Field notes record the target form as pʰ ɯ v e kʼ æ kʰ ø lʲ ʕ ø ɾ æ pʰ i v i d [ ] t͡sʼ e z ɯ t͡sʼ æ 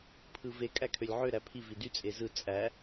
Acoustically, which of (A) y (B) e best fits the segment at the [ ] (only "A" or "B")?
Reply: A